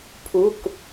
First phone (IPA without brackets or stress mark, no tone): pʰ